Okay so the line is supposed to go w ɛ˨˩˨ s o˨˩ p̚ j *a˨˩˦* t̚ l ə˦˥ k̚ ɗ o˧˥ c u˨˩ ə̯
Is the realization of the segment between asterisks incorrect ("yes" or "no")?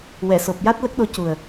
yes